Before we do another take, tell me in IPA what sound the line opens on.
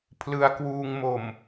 pʰ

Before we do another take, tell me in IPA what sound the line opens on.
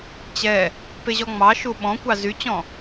t͡ɕ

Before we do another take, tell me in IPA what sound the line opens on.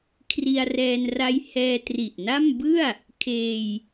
kʰ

